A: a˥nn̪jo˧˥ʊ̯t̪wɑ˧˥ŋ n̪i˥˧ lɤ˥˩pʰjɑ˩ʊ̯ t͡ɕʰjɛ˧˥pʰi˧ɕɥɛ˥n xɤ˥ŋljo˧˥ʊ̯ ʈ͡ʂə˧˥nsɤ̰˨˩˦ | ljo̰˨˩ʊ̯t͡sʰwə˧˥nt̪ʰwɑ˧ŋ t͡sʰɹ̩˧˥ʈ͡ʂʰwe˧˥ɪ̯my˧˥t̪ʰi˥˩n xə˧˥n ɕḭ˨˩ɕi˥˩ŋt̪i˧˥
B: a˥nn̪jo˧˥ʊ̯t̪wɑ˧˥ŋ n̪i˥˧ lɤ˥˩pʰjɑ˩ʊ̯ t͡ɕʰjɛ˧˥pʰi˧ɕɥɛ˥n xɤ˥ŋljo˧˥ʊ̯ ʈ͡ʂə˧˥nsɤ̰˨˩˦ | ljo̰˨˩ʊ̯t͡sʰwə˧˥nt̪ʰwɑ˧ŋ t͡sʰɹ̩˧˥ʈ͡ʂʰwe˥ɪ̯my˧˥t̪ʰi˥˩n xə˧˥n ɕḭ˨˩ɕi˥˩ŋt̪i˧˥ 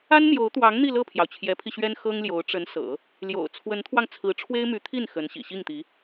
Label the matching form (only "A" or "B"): B